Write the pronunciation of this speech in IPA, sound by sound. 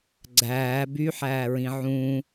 ɡ͡ǀ æː b y ħ æː ɹ ĩ ʕ ũ

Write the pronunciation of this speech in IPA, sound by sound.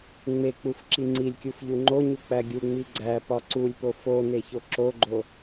ŋ͡m e k͡p u f ǁ i ŋ͡ǀ i lʲ kʲ u f ʎ u ŋ͡ǃ o ɲ u k͡p æ ɡʲ u ŋ͡m i ɡ͡ǀ æ p ɒ ǀ u lʲ p o f o n e ç o ǁ o ɡ͡ǃ o

